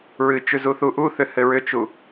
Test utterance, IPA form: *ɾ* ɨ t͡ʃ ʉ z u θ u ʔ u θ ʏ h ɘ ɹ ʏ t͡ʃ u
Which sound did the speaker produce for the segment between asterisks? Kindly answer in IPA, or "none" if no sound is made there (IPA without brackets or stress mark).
ɹ